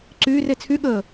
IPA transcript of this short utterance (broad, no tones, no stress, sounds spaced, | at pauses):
ǀ yː r e t͡sʰ y ɠ əː